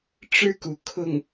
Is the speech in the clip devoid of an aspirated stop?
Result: no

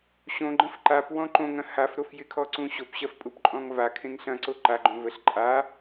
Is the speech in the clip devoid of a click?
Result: no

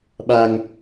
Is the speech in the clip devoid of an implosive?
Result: no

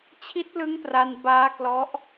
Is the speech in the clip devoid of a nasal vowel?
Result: yes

